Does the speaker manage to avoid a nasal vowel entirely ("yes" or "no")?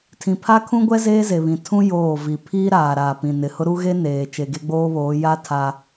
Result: no